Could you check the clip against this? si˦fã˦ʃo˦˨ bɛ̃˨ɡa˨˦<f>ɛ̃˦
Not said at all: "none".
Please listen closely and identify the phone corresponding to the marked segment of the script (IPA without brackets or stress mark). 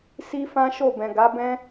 b